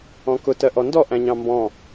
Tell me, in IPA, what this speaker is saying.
ɔ̃ k ʊ t ɜ ʔ ɔ n d ɔ ʔ æ̃ ɲ ɑ̃ m b ɔ̃

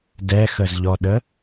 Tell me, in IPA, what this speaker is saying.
d ɛ x ə z ʎ ɔ ɗ ə

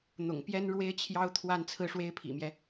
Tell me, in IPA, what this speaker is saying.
n̪ ʊ̰˨˩ ŋ p j ɛ˥ n ɻ w e˥ ɪ̯ t͡ɕʰ j ɑ˥ ʊ̯ t̪ʰ w a˥˧ n t͡sʰ ɹ̩˥˩ ʂ w e˥ ɪ̯ pʰ ḭ˨˩ m j ɛ˦

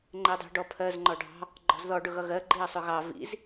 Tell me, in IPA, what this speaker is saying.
ŋ͡ǃ ɛ dˤ ɛ̤ ɖ ɔ pʰ ɜ z ŋ͡ǃ ɔ ɖ ɑ̤ | ɡ͡ǃ ɔ̤ z ð ɔ ɖ ʊ ɣ ʌ ɣ ɜ ɡ͡ǃ i ɐ̯ sˤ ʊ ɣ ɑ v ḭ z

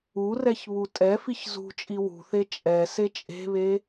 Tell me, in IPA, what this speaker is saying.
u r ɛ ç β u tʼ ɛ f i ç z ṳ t͡ʃʼ i w ṳ θ e t͡ʃʼ ɛ s e t͡ʃʼ e̤ β e

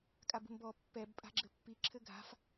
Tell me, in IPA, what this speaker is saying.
kʼ a b ṳ m b ɔ pː ɛ b pʼ a̤ ɡ͡ǁ ɘ pː i ǁʰ ɘ ɡʱ a̤ f

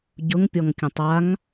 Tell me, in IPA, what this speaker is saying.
ɟ ʊ ŋ pʲ ɔ ŋ kʲ ə̃ tˤ a ŋ

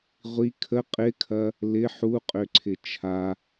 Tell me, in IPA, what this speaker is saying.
ʁʷ i kʰ ə qʼ ɪ kʰ ɐ | l ɪ ħ u qʼ ø ǀʰ ɪ t͡ʃʰ a

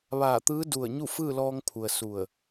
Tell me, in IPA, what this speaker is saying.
ʋ aː˧˩ t̪ ɯː˧˥ d u˧˩ ə̯ ɲ u˥˨ f ɯː˥˨ l ɔː˧ ŋ pʰ u˩ ə̯ s u˧˩ ə̯

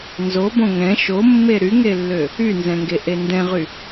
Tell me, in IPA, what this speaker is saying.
n z o b õ ŋ ɛ̃ ʃ o mː e ɾ y ŋ e lː ø | y n z ɛ̃ ŋ ɡ e ʔ e n d ɛ̃ ʁ y

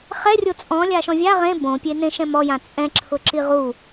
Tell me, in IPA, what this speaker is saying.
χ ɛ rʲ o t͡sʼ ɔ̃ lʲ a ʃ ɔ̃ vʲ a ʁ ẽ b õ pʲ e n ẽ ʃ ɛ̃ m ɔ j ã t͡sʼ ɛ̃ ǁʰ ʊ ǁ i ʁ u

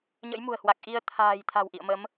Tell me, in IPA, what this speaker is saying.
ɲ ə̰˧˥ j m ṳ˨˩ ə̯ h w a˨˩ k̚ ʔ i˧ ə̯ t̪ʰ a̤ː˨˩ j t̪ʰ a̤˨˩ w ʔ ḭ˧˨ ə̯ m ə˨˦ m

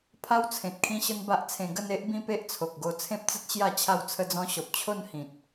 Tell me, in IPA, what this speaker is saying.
pʰ a˦ w t͡sʰ ẽ˨ t̚ kʰ ĩ˦ ɕ ə˦ n b a˦ ʔ t͡sʰ ẽ˧ ɡ ə˥˧ n e˦ ʔ b ĩ˦ p e˦ ʔ t͡sʰ o˨ k̚ ɡ o˧ t͡sʰ ẽ˦ p̚ t͡s ə˦ t̚ ɕ j a˥˧ t͡ɕʰ a˥˧ w t͡sʰ ə˦ d͡z ɔ̃˦ ɕ ɔ˨ p̚ t͡ɕʰ o˥˧ n h ĩ˨ t̚

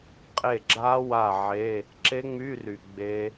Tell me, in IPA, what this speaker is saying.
qʼ e˥˩ ɡ͡ǁ a˦˥ w a˥˩ ʕ e˧˥˧ | ǁ e˦˥ ŋ͡m y˧˥˧ r y˨ ɡ͡b e˦˥

